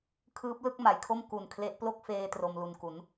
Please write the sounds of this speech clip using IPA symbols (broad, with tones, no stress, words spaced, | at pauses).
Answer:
kʰɯː˦˥p̚lɯ˥˩k̚ma˩˦jkʰo˥˩m ku˨˩nkʰle˦˥ʔ plo˥˩k̚feː˧ tro˧mlu˧nku˩˦n